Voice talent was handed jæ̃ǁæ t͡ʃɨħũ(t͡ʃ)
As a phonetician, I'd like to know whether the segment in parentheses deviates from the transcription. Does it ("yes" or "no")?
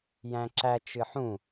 yes